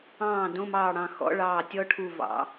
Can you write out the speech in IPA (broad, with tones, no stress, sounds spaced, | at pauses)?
ɑ̃ː˧˩ d õ˧˥˧ m ɑː˧˩ ɽ ɑ̃˧˩ x ɔ̰˧˥˧ ɭ ɑː˧˩ tʲ ɔ˦˥ ʈʰ u˧˩ v ɑ̰˩˧